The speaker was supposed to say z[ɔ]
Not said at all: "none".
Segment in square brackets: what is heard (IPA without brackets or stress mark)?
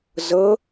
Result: ɤ